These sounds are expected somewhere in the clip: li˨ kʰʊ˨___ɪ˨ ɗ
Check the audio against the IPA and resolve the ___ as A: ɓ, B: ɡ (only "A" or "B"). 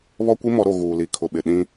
A